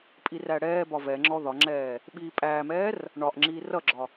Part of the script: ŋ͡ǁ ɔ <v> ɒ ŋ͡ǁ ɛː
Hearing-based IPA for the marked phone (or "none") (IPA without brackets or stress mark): ð